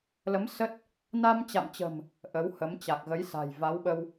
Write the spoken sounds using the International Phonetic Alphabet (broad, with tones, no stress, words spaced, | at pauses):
lə˨˦m sə˦˥t̚ | na˧mt͡ɕa̰˧˨mt͡ɕə̤˨˩m | ʔə˨˦whə˨˦m t͡ɕa˨˩k̚ɣə˨˦jsa̤˨˩j va˨˦wɓə˧w